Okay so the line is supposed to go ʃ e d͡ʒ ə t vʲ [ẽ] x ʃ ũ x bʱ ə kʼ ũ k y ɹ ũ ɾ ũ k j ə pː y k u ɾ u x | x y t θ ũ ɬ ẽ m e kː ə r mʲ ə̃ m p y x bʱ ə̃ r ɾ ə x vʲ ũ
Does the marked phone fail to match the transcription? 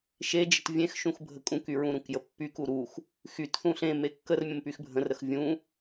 no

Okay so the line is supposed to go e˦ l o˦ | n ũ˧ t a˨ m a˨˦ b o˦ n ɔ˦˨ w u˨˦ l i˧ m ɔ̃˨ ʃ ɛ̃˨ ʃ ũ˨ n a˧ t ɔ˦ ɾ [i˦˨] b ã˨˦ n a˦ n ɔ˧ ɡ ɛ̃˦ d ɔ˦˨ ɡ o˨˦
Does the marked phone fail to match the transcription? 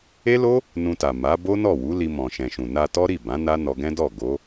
no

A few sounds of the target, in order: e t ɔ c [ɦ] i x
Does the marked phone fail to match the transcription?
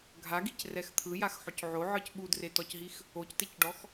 no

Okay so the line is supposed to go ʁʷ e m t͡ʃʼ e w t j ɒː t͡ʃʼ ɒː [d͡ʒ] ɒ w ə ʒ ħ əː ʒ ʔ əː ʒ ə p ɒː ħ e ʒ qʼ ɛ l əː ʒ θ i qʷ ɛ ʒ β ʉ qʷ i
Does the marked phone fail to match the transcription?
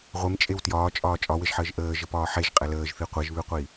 yes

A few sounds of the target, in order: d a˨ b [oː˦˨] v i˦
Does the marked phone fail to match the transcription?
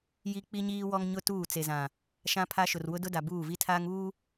yes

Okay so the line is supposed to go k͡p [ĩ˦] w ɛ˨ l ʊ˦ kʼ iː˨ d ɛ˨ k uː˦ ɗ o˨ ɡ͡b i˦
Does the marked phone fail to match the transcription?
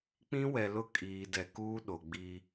no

